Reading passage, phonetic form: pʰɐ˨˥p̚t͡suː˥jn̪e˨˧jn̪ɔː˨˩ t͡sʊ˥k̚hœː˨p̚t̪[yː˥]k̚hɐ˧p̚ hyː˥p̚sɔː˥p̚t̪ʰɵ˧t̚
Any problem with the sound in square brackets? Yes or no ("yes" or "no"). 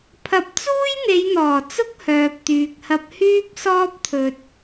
yes